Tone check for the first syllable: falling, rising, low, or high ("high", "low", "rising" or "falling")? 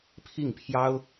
falling